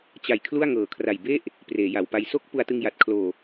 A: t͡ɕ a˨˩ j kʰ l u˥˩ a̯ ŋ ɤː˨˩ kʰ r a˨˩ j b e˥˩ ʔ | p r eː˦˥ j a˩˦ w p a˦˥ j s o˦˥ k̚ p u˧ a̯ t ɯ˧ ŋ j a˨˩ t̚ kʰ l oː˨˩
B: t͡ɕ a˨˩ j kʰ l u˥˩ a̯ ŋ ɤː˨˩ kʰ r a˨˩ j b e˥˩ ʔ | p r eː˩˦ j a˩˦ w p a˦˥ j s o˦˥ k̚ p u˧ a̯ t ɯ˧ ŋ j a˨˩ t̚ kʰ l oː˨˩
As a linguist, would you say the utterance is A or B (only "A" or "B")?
B